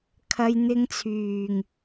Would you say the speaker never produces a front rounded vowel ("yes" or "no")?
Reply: no